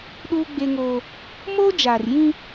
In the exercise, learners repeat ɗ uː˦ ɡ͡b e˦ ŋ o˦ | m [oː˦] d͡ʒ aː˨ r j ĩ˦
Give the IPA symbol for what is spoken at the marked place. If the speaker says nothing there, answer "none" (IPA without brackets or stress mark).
oː˦